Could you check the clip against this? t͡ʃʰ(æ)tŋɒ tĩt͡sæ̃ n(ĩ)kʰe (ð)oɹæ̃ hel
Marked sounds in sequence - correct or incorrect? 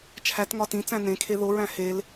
correct, incorrect, correct

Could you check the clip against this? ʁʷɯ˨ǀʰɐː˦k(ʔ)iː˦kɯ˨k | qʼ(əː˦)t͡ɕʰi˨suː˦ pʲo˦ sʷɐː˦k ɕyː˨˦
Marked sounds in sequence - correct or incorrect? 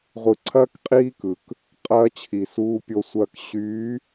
incorrect, incorrect

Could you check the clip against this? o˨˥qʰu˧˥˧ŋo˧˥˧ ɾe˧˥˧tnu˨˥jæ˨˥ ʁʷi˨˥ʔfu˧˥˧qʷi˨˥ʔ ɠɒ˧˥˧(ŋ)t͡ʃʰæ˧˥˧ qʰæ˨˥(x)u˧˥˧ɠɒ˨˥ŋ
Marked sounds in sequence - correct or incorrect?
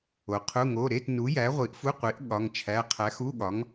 correct, correct

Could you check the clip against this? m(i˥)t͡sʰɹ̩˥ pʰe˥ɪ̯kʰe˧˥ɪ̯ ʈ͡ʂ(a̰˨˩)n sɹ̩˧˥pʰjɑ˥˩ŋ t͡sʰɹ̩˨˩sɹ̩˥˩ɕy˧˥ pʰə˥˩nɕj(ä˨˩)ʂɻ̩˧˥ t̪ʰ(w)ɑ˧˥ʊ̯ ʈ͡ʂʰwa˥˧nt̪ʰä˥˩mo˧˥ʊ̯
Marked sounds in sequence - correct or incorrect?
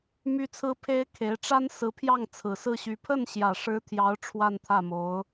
incorrect, incorrect, correct, incorrect

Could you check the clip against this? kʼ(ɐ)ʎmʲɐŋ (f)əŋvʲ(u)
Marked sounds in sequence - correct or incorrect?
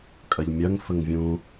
correct, correct, incorrect

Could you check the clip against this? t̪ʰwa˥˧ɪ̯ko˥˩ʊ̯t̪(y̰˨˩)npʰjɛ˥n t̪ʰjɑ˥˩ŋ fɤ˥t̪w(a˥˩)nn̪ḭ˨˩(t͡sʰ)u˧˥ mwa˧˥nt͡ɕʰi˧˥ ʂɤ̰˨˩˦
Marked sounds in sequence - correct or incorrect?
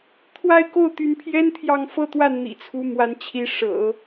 incorrect, correct, correct

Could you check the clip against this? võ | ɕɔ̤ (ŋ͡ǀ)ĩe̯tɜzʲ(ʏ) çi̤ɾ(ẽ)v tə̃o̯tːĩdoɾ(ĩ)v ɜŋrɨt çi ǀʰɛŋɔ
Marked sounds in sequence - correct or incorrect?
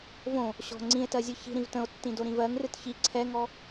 correct, incorrect, incorrect, correct

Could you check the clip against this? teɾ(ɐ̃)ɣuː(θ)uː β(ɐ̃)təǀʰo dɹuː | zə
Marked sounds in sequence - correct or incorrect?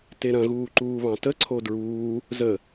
correct, incorrect, incorrect

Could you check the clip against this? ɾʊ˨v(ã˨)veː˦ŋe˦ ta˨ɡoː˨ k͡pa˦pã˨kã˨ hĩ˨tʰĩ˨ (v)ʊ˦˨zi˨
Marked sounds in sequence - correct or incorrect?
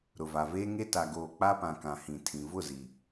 incorrect, correct

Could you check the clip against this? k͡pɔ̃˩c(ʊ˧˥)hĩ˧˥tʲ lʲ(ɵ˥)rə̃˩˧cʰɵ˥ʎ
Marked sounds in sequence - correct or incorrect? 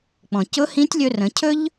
correct, incorrect

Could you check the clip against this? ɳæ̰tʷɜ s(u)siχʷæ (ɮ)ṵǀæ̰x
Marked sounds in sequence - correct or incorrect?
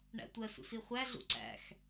incorrect, correct

